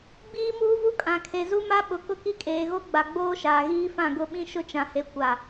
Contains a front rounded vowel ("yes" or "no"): no